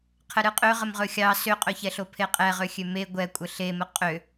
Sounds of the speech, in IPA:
qʰ ə ɾ ɨ qʼ ø ʁ ə m ʁ ɵ xʲ ɑ s ø qʼ ɵ ç ɛ ɬ o pʰ e qʼ ɛ ʁ ø xʲ ø m e ɡʷ ɛ kʷʼ ə ɬ e m ə qʼ ø

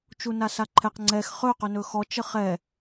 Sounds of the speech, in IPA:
t͡ʃ u n a s a ǃʰ ɛ q ŋ͡ǀ ɛ x χ ɵ q ɵ n ɵ x ɔ t͡ʃ ə χ ɛ

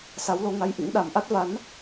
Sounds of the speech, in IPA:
s a˨˦ w l o˨˦ ŋ a˧ j ʔ ḭ˧˥ ŋ ɗ a˧˩ m ʔ a˦˥ t̚ v a˨˦ n

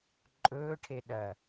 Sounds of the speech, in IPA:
ǃʼ ɵː ʈʰ e ɗ ɐ

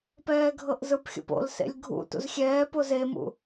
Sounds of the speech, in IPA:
p ɛː ɡʱ ɤ ʔ z ɯ p xʲ o̰ p o̰ l s ḛ lʲ ɡʱ ṵ t ṵ z xʲ ɛː p o z e m ṵ

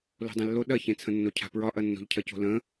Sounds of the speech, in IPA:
l o̤ dˤ ẽ lː o ɗ ɐ ç ẽ t͡sʰ ə̃ nː o cʰ a̤ p ɹ ɒ ʔ ɐ nː o̤ ʎ cʰ ɐ c o̤ l ə̃

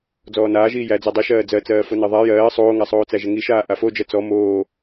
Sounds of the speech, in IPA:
d͡z ɔː n aː ʒ iː j æ d͡z æ dˤ i ʃ ɜː d͡z ɜ t͡s ɜː f o n ɜ ðˤ a j ɜː sˤ oː ŋ a sˤ oː t͡s æ ʒ ə ŋ i ʃ aː ʔ a f o d͡ʒ ɜ t͡s ɔ m oː

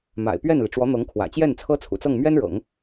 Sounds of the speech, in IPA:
m a̰˨˩ ɪ̯ p ɥ ɛ˥˩ n l i˩ ʈ͡ʂ w ɔ˧˥ n̪ ɤ˧˥ ŋ kʰ w ä̰˨˩ t͡ɕ j ɛ˥˩ n t͡sʰ ɤ˥ t͡sʰ ṵ˨˩ t͡s ɤ˥˩ ŋ m ɥ ɛ˥ n ɻ ɤ̰˨˩˦ ŋ

